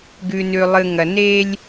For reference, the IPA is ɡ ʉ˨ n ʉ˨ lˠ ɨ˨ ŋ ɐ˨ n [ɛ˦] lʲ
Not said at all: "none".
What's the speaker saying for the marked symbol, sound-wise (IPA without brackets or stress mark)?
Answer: e˦